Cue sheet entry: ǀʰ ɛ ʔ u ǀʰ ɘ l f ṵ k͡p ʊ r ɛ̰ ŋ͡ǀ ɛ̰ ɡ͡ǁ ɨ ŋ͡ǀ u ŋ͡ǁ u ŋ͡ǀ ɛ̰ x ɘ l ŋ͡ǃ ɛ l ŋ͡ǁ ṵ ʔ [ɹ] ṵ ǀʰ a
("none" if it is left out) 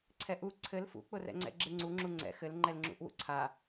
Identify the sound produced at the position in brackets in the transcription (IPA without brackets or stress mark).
w